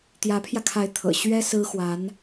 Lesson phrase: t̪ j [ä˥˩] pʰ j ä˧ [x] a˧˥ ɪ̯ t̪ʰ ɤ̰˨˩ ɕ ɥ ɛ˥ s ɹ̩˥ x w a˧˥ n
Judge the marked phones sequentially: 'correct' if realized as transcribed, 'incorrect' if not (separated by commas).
incorrect, incorrect